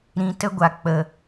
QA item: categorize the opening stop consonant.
plain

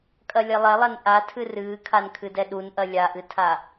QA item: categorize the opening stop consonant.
ejective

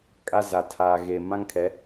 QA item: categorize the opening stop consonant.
ejective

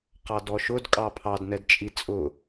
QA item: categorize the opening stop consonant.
plain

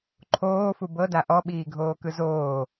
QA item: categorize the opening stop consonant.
click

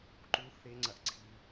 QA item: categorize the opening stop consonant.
click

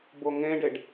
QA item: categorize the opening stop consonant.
plain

